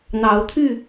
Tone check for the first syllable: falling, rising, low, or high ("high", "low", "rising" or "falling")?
rising